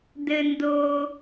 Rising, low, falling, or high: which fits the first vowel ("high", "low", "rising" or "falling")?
low